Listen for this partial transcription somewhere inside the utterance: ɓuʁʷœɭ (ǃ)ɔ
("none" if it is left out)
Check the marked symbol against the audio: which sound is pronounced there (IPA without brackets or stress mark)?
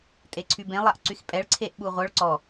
ǀ